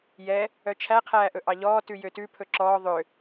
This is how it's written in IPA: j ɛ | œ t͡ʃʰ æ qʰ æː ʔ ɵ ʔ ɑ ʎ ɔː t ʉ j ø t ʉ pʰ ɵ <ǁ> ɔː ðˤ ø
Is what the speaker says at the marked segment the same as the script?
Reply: yes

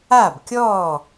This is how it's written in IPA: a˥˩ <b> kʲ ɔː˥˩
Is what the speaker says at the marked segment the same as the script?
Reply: yes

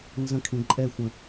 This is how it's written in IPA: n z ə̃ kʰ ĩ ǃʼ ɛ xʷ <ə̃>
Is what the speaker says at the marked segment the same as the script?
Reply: yes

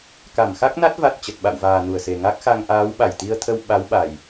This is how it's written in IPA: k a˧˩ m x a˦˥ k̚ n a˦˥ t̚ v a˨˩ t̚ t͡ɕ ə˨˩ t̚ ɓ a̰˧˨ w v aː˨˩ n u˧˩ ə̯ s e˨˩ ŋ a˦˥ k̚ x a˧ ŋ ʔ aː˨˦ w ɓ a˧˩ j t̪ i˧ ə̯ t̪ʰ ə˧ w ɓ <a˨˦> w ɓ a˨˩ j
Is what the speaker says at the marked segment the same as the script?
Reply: yes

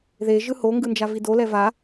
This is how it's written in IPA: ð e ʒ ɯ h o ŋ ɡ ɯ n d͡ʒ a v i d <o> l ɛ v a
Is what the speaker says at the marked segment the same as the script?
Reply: yes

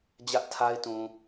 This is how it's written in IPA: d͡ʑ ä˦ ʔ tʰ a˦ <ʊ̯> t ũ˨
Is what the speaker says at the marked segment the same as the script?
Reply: no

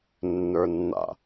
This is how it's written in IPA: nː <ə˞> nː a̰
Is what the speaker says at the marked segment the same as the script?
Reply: yes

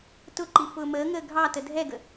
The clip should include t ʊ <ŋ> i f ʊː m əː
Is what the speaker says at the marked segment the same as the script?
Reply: no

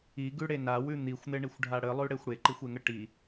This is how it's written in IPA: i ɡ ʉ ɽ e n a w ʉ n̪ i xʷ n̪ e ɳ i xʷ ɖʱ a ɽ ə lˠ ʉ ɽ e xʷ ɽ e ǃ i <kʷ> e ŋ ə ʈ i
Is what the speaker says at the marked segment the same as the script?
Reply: no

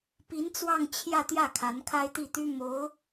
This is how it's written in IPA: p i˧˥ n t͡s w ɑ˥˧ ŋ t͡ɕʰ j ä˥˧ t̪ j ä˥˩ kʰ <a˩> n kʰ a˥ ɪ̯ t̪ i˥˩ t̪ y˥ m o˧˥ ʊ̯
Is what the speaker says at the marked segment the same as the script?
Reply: no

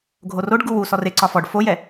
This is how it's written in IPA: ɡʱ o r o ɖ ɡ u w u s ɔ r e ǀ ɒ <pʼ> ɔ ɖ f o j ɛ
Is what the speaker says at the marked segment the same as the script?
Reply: no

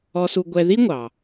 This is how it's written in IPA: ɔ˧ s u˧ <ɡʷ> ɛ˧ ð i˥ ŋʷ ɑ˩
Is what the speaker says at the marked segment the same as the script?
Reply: yes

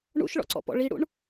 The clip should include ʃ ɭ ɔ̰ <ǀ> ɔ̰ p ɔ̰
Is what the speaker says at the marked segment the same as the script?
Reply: yes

